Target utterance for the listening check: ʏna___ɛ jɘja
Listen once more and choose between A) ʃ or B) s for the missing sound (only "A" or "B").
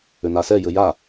B